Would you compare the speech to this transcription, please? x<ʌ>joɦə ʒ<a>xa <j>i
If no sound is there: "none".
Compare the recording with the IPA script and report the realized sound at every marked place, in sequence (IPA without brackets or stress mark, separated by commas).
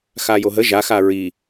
a, a, ɹ